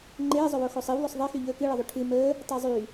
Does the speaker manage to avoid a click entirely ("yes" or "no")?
no